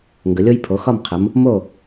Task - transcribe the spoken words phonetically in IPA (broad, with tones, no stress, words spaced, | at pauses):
ŋɡə˨˦lʲo˥j pʰo˨˦xɒ˥˨mqʰə˨˦m | mo˥˨